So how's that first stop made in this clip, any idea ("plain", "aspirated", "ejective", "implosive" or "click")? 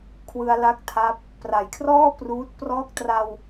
aspirated